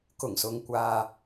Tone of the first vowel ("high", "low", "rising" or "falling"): low